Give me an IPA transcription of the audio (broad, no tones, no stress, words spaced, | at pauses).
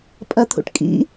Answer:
pʼɐt̪ʰṵʈkʼḭ